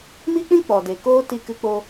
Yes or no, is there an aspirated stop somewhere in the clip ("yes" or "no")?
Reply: no